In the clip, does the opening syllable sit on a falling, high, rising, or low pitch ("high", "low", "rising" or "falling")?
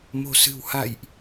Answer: low